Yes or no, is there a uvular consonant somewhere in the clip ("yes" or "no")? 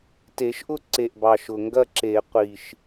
yes